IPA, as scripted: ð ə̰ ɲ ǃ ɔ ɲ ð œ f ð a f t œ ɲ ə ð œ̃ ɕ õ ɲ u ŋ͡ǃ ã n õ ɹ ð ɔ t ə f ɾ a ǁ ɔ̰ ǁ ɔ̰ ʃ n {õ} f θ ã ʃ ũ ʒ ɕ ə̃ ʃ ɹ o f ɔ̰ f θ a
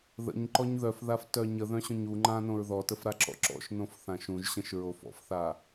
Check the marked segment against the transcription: correct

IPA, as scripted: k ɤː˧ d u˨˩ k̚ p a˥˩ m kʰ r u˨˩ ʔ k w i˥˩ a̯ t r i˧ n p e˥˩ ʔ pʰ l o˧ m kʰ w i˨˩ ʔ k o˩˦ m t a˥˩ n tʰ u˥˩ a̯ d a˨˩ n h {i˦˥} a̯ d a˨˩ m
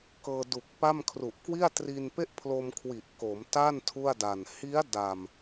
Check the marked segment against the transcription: correct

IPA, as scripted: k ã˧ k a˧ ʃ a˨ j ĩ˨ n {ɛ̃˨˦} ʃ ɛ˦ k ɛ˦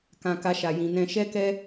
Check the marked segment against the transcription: incorrect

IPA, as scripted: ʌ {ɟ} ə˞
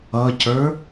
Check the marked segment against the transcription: incorrect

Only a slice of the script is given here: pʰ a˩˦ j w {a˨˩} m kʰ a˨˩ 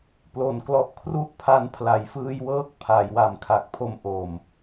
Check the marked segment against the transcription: correct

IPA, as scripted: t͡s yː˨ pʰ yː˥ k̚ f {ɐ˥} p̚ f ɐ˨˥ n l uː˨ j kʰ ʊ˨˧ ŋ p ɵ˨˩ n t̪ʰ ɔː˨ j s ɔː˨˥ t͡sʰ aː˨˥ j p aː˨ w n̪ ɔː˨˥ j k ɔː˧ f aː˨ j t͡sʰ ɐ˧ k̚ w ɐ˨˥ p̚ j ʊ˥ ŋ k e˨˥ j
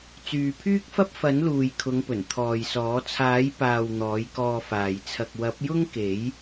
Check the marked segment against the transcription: correct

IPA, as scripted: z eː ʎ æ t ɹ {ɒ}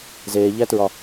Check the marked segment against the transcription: correct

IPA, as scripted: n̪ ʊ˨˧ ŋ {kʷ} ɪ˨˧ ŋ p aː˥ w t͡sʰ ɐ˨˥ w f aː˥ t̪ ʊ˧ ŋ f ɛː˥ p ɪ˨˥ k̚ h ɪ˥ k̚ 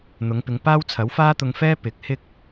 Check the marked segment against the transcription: incorrect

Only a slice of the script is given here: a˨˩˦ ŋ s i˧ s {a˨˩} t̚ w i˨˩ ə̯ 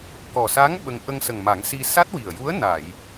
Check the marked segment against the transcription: incorrect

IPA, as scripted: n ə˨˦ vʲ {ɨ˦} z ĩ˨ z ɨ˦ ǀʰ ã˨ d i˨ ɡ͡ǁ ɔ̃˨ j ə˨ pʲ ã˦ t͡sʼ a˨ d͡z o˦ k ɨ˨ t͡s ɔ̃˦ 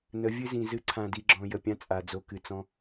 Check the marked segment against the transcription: correct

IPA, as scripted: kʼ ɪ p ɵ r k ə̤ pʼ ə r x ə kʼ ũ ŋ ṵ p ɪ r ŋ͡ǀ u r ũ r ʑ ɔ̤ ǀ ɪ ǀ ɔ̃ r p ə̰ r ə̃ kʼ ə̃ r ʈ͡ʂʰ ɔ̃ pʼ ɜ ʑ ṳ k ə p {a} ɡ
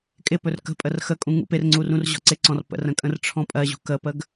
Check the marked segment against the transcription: incorrect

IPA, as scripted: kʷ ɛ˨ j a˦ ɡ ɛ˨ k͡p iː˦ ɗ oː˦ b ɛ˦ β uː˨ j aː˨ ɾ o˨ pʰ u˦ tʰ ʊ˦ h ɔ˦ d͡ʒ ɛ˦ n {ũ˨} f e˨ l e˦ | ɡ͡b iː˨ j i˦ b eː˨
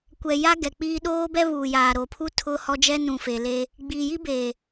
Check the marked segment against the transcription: correct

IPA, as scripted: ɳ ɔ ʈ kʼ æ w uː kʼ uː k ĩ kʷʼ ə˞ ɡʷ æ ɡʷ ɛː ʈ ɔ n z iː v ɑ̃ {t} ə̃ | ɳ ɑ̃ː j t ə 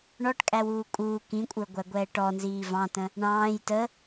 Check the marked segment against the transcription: correct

